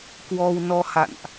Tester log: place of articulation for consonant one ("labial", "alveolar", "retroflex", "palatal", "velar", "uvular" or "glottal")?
velar